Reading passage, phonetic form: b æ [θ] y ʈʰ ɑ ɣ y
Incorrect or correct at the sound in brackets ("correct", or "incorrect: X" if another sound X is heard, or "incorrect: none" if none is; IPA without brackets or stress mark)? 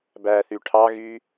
correct